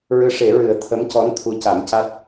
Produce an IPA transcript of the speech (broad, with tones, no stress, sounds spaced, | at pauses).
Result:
ɹ ɨ˧˥ ʂ e˨˩˦ ɹ ɨ˨˩˦ ə̯ t̪ʰ ə˧˥ m c ɔ˧˥ n t̪ʰ u˧˥ c a˨˩˦ m c a˦˥ t̚